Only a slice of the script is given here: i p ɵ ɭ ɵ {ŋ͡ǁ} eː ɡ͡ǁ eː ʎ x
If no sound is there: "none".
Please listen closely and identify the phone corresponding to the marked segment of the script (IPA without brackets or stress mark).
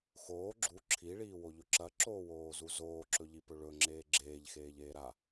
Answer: ŋ͡ǁ